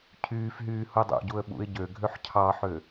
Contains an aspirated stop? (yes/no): yes